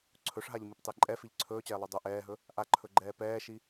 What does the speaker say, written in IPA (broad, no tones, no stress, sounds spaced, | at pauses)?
ǀʰ ɵ ʂ ɦ a ʎ m i p tˤ e ǃʼ ɛ f i ʎ ǀʰ ɵː t͡ɕ ɛː lˠ y dˤ ɵ ʔ ɛː ɦ ɵ | ʔ a ǃʰ ɵ ɡ͡ǃ ɛː p ɛː ʃ i